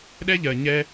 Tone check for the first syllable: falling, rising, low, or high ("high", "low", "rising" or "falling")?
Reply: high